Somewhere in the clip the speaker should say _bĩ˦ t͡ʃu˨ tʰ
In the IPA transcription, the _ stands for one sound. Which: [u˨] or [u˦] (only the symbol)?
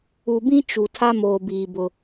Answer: u˨